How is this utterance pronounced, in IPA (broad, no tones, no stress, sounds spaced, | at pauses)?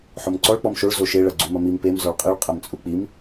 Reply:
ħ o m ǀ ɔ ɭ k͡p ɔ m ʃ o ɭ z o ʃ e ɭ ɐ ɡ͡ǀ u m ɐ m i m p e m z ɔ ɭ qʼ i ɭ qʼ ɐ m t͡sʼ u k͡p i m